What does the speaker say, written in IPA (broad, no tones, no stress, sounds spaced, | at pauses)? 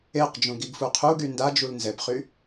e q d͡ʒ ũ ɡ i ɡ f u qʰ u ɡ y n d a d͡ʒ u l n z ɛ p χ y